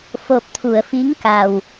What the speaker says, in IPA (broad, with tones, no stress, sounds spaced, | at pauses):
f o˨˩ p̚ t̪ʰ u˨˩˨ ə̯ f i˧˥ ŋ k a˨˩ w